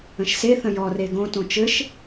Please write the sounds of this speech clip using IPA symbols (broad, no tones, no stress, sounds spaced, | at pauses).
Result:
ə̃ ʃ s e θ ə̃ j ɔ r e ɡ õ t õ t͡ʃ ɘ ʃ